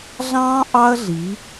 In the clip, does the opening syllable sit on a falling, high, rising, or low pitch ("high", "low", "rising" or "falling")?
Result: high